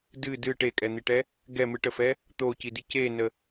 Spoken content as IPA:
d ɨ d ɨ ʈ e kʼ ɛ n̪ i ʈ ɛ | ɡ ɛ m ɨ ʈ ə f ɛ | t̪ o c i d i c e n ə

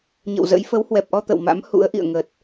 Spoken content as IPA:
ɲ ə̰˧˨ w z ə̰˧˥ j f ə˨˦ w h w ɛ˨˩ p̚ ʔ ɔ˧ t̪ ə̰˧˨ w m a̰˧˥ m h ṵ˧˥ ə̯ ʔ ḭ˧˨ ə̯ ŋ ə˨˩ t̚

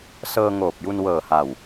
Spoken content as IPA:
s ɤː˧ ŋ oː˨˩ p̚ j u˧ n w ɤː˨˩ h a˨˩ w

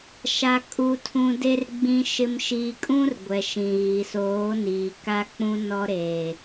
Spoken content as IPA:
ʃ a˨ kʼ u˨ tʰ ũ˨ d e˨ r ɡ͡b ĩ˨ ʃ ɪ˨ m ʃ i˨ kʼ ũ˦ r ɡʷ ɛ˨ ʃ ĩ˨ ɣ i˨ s oː˨˦ n iː˨ k a˦ k͡p ũ˦ n ɔ˦ ɾ eː˨

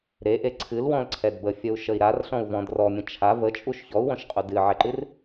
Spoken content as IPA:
ɾ e ʔ e ǀʰ ɨ l w ɔ̃ l ǀʰ ɛ d b ə fʲ ə u̯ ʃ ə i̯ ɾ a r ɬ ɔ̃ u̯ v ɔ̃ d r ɔ mʲ ə̃ t͡ʃʰ a v ə t͡ʃʼ u ʃ ç ɔ u̯ w ɔ̃ ʃ qʼ u d ɨ ʕ ɛ ǃ ɨ r

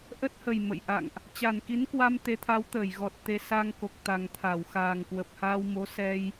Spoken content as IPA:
ʔ ə˦˥ t̚ h ə˨˩ j m ə̰˧˨ j ʔ a̰˧˨ ŋ ʔ | t͡ɕ a˨˩ n k i˨˦ n k w a˧ m t̪ e˨˦ t̪ʰ a˨˦ w t̪ əː˧˩ j ɣ ɔ˨˩ t̚ t̪ e˧ s a˧ ŋ k o˨˩ k̚ t̪ a˨˩ ŋ t̪ʰ a˧˩ w x aː˨˩ ŋ k w ə˨˩ p̚ h aː˧ w m o˨˦ s ɛ˧ j

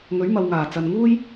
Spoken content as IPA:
ŋ ɵ˨˥ ɥ m ɐ˨ w ŋ aː˨˩ t͡s ɐ˨ n ŋ uː˥ j

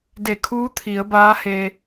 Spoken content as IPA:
d e˧˩ kʰ uː˧˥ t̪ʰ i˩˧ ə̯ b aː˧˥ h e˧

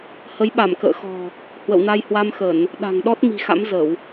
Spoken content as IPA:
h ə˨˦ j ɓ a˧˩ m k ə̰ː˧˨ x ɔ̤˨˩ | h w ə̰˧˨ w n a˧ j h w a˧ m x ə˧˩˨ n | ɗ a̤˨˩ ŋ ɗ ɔ˦˥ t̚ m i̤˨˩ x a̰˧˥ m z ə˧˩˨ w

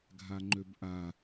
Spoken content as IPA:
ɡʱ a ŋ͡ǃ ø b ʔ a

